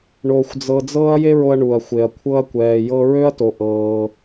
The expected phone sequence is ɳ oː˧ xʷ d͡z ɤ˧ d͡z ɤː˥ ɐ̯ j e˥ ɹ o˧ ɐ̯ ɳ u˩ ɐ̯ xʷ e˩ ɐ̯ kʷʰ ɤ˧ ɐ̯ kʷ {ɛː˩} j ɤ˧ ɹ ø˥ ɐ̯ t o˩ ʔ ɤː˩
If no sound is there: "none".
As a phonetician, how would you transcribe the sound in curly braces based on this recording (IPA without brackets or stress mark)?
ɛː˩